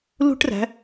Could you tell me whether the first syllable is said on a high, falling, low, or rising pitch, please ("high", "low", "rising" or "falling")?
high